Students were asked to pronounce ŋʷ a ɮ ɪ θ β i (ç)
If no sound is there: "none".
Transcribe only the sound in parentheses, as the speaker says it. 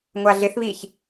ç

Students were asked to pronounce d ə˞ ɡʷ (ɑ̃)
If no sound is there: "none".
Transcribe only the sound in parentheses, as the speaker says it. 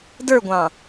ɑ̃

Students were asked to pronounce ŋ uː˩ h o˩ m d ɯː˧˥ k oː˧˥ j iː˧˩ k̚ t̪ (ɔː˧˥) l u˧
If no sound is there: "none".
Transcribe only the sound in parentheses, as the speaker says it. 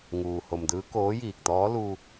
ɔː˧˥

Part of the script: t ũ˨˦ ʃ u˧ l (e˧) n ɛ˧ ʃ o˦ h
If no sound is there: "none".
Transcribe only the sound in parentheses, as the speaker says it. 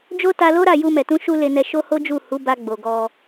e˧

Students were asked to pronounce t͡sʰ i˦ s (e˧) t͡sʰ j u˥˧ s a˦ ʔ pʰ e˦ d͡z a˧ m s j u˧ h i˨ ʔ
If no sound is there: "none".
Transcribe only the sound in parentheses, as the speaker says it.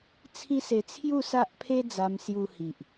e˧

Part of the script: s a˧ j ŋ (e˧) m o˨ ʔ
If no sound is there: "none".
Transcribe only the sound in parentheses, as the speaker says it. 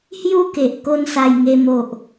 e˧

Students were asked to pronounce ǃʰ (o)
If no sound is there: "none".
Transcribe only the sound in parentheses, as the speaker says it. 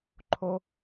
o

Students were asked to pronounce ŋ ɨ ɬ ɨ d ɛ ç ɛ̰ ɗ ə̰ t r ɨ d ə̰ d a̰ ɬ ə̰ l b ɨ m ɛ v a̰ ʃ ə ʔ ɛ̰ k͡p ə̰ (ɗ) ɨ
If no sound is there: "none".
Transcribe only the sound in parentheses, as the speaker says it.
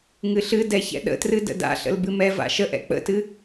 t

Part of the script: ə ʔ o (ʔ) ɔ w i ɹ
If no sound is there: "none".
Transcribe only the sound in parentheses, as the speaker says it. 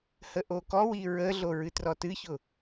k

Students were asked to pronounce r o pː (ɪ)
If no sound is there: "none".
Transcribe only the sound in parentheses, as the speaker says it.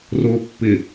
ɪ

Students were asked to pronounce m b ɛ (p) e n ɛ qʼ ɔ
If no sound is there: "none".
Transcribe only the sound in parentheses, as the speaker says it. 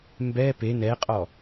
p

